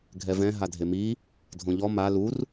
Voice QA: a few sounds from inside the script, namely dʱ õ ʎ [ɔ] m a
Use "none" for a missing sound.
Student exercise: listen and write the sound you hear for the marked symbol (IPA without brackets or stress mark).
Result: ɔ